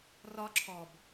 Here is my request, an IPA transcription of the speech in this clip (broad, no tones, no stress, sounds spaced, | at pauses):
r ɒ ǁʰ ɔ b